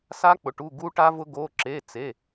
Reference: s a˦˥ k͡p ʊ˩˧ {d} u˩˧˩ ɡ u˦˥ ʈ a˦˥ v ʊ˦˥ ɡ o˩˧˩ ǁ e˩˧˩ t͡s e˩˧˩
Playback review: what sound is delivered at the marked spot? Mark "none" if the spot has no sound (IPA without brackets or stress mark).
ʈ